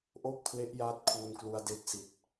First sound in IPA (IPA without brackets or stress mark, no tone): ʔ